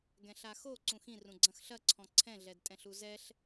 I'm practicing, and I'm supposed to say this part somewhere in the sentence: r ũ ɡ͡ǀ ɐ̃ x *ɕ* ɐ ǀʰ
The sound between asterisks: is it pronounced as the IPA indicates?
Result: no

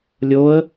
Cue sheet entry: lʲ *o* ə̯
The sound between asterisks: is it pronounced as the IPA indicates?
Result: yes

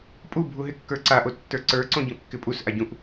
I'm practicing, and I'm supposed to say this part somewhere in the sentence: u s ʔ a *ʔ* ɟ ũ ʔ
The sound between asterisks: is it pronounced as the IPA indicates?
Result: no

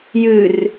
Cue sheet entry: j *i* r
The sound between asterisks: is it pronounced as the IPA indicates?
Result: no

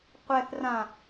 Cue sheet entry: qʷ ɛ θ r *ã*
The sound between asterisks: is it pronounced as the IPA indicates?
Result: yes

